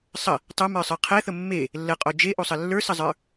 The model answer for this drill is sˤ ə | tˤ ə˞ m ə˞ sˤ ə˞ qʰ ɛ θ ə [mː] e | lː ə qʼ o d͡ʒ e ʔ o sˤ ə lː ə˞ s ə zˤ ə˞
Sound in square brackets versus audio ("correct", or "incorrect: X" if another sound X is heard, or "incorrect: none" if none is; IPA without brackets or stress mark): correct